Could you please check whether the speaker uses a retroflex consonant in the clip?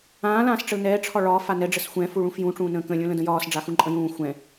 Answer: yes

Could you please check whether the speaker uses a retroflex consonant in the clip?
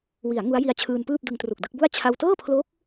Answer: no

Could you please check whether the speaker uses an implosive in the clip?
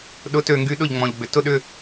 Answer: yes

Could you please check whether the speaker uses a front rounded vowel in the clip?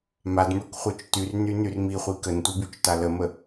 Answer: yes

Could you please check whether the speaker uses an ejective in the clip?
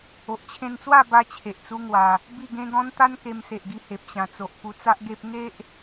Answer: no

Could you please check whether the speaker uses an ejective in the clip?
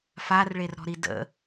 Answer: no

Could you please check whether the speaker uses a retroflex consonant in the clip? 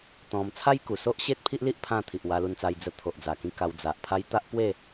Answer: no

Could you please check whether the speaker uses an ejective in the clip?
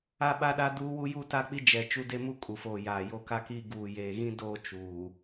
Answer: yes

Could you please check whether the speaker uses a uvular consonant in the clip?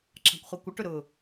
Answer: yes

